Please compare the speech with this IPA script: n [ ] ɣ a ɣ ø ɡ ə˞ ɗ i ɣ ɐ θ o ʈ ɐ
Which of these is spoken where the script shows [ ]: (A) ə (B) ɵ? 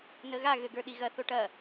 A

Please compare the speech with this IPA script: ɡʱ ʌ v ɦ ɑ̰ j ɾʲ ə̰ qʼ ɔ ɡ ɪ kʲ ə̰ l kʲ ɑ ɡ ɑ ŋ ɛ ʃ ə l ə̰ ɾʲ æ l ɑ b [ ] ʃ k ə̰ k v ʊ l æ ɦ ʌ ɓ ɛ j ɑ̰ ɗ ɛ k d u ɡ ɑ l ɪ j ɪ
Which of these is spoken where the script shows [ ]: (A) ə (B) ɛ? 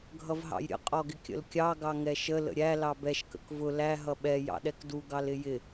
B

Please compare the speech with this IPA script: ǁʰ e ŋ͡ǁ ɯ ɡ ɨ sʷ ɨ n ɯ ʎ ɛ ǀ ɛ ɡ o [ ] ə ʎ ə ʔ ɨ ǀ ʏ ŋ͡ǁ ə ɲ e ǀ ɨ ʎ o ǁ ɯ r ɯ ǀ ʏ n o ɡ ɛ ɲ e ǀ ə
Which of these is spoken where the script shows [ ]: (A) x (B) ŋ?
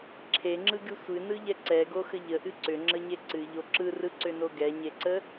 A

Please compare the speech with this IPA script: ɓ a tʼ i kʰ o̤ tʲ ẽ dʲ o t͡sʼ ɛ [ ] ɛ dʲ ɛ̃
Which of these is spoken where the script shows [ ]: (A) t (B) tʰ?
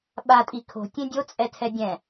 B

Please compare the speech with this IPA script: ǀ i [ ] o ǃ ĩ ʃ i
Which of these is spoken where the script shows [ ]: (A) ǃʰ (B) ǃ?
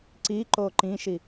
B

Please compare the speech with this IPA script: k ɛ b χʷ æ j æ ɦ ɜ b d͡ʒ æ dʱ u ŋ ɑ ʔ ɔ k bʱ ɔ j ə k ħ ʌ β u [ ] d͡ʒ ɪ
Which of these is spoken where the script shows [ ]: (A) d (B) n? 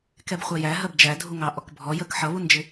B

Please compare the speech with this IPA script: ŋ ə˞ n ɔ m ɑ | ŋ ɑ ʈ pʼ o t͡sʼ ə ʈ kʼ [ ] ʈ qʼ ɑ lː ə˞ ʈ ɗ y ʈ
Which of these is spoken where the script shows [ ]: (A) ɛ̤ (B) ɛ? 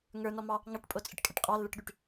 B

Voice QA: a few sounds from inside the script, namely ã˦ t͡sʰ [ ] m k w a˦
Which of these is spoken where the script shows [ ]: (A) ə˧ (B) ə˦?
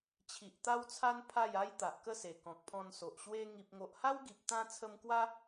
A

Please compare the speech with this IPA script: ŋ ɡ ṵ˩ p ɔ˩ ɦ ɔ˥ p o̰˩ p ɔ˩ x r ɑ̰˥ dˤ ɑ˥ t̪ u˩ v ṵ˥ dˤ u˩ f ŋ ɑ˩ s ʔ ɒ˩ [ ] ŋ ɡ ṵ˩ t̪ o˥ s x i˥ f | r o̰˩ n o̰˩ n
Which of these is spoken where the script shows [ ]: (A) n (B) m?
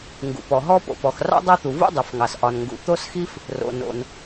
A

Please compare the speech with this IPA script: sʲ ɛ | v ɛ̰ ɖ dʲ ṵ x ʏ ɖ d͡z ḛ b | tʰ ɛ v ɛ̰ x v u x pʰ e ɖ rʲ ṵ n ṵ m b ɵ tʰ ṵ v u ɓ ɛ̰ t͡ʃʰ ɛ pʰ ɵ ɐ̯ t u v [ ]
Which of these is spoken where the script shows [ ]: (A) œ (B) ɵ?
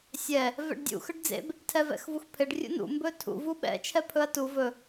B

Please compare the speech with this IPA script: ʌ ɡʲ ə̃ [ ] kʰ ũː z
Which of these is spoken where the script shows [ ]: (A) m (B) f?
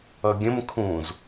A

